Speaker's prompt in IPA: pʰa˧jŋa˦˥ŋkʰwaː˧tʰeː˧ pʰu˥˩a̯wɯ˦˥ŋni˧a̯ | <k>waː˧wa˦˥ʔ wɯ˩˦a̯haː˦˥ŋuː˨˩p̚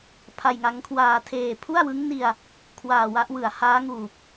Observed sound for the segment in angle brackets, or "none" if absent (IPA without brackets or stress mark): kʰ